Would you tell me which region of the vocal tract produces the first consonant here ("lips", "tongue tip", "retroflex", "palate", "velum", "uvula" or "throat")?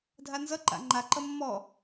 tongue tip